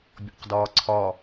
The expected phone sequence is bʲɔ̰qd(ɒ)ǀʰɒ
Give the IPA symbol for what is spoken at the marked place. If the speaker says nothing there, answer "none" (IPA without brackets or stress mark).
ɒː